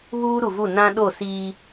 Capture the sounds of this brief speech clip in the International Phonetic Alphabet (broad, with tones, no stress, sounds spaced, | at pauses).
β uː˦ ɾ u˨ v u˦˨ n ã˦ ɗ o˦˨ s iː˦